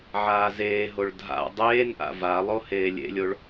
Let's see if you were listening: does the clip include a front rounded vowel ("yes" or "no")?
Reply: no